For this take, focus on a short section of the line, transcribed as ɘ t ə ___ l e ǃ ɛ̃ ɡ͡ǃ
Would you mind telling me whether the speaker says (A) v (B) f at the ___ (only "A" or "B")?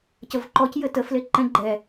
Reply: B